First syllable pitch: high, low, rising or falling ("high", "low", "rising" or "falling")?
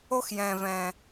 high